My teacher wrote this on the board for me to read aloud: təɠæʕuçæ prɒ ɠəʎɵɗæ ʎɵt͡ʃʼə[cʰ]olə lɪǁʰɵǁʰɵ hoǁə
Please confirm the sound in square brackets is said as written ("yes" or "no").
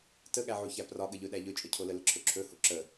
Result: yes